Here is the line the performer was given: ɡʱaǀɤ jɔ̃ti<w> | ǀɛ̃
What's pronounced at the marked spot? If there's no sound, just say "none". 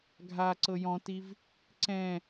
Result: v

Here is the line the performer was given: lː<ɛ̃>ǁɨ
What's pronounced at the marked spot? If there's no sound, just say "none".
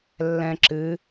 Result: ɛ̃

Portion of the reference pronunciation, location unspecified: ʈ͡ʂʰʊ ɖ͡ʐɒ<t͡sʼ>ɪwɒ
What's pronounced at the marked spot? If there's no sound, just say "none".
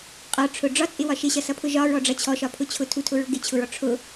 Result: t͡sʼ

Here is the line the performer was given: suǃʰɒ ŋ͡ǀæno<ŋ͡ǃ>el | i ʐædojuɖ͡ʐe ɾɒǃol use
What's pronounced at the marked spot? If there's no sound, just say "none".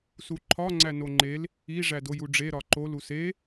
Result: ŋ͡ǃ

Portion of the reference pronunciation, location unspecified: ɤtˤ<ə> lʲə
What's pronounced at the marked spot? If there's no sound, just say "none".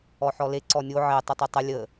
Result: ə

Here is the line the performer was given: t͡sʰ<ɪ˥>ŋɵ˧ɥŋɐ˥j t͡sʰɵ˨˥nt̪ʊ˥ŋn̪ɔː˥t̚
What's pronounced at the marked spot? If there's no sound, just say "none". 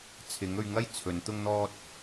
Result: ɪ˨˥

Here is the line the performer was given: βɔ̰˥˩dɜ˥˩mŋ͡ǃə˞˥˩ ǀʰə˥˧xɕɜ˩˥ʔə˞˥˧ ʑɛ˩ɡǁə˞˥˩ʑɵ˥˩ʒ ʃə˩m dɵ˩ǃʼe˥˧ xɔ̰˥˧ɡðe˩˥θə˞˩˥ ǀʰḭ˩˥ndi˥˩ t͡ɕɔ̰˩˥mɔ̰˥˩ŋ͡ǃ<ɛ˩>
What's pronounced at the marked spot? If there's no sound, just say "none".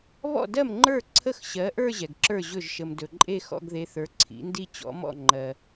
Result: ɜ˩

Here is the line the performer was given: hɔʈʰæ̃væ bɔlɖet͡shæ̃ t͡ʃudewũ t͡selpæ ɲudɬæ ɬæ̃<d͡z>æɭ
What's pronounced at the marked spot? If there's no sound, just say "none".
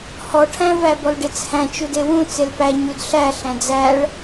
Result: d͡z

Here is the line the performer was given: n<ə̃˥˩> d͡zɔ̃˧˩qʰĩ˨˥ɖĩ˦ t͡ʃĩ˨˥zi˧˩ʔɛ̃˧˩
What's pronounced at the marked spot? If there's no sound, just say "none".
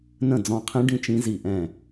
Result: ə̃˥˩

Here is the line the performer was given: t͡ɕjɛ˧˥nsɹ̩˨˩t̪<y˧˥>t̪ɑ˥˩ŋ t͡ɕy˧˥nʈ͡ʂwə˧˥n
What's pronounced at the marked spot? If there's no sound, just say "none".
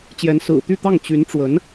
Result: y˥˧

